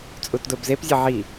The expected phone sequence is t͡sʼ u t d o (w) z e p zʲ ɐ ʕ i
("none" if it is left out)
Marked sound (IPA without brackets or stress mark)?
b